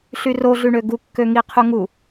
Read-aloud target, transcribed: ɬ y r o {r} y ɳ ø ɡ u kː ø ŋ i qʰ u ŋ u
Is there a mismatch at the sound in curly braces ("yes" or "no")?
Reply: yes